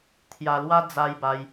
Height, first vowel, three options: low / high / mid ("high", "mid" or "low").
low